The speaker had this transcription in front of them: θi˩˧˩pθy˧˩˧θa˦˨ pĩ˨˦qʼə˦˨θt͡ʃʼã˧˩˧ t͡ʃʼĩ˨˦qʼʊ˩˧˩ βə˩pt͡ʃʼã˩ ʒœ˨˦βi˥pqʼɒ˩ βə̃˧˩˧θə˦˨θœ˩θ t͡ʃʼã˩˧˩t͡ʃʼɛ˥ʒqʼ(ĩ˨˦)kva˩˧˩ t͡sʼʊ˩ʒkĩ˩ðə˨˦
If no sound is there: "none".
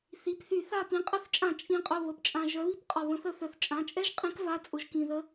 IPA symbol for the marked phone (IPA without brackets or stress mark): ĩ˨˦